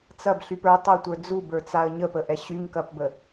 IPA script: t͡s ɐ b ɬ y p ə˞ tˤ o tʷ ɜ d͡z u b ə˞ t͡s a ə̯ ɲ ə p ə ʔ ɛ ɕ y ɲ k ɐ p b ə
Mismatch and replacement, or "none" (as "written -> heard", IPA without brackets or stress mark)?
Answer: ɜ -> ə˞